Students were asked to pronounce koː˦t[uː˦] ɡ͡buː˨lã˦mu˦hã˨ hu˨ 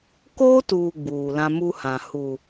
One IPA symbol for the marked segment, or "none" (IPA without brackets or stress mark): uː˨